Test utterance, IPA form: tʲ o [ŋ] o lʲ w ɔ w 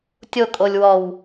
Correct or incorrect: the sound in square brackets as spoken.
incorrect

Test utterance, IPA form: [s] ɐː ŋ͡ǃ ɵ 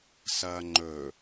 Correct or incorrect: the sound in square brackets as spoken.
correct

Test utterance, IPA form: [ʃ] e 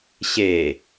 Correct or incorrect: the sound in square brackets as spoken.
incorrect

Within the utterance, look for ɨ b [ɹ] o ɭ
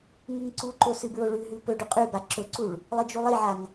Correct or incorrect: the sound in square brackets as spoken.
correct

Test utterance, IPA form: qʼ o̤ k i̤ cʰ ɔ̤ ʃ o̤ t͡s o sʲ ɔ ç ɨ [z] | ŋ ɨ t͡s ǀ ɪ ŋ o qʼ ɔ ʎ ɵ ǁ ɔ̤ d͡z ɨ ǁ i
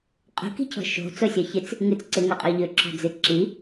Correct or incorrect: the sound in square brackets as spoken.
incorrect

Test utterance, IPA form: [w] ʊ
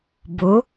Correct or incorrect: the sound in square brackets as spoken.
incorrect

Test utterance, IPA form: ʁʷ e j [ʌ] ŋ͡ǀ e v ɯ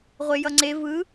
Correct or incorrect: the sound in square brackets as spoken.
correct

